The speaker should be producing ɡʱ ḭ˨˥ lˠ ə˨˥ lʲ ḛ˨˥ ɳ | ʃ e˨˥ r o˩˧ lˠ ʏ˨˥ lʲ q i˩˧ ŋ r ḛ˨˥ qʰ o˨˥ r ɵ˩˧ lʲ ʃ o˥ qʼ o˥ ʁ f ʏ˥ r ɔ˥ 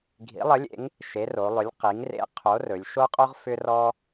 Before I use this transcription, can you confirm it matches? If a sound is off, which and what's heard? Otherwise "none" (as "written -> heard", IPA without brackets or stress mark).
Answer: ɳ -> ŋ